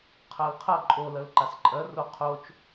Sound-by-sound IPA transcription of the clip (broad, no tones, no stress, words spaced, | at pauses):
qʰɜlqʰɐ ǃʼo lɜlǃasǃʼɜ roqʰot͡ʃ